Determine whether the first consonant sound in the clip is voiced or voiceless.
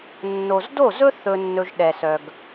voiced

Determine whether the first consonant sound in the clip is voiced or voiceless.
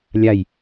voiced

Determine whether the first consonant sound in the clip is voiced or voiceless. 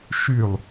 voiceless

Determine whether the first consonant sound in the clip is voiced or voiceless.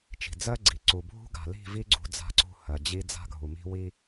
voiceless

